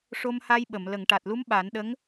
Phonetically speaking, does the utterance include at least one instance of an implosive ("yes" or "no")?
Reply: yes